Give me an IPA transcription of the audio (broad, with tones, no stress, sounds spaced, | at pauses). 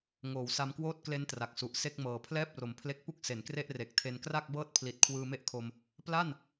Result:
ŋ oː˩˦ w s a˧ m k w oː˥˩ t̚ k l e˦˥ n t r a˨˩ k̚ s u˨˩ ʔ s e˥˩ k̚ m ɤː˨˩ pʰ l ɛː˥˩ p̚ r o˩˦ m pʰ l e˦˥ k̚ p u˥˩ k̚ s e˩˦ n k r e˥˩ ʔ r e˨˩ k̚ tʰ e˧ n k r a˥˩ k̚ b ɤː˥˩ t̚ pʰ l i˨˩ t̚ kʰ w ɯː˧ m e˥˩ ʔ kʰ o˧ m | p l a˥˩ n